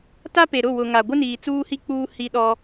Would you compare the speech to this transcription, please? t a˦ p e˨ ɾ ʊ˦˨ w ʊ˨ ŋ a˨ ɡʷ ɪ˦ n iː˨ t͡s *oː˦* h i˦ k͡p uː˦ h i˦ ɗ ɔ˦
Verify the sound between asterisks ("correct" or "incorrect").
incorrect